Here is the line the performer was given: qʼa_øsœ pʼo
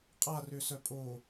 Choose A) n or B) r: B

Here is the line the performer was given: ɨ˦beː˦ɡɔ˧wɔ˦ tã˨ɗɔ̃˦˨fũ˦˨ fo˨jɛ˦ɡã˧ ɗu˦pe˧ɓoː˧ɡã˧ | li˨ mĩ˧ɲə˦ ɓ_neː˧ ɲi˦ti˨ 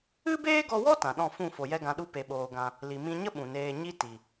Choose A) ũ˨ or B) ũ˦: A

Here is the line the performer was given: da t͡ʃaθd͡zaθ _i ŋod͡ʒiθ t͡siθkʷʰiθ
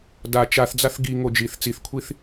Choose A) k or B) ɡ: B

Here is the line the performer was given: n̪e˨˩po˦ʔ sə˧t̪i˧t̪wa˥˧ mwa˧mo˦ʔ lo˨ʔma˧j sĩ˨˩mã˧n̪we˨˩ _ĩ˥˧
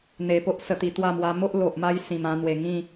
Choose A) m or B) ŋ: B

